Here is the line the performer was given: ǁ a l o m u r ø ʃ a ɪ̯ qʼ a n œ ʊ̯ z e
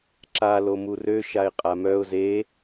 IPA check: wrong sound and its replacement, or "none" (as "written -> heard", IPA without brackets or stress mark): n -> m